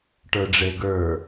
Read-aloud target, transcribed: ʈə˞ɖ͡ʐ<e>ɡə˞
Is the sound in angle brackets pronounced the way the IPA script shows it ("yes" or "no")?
yes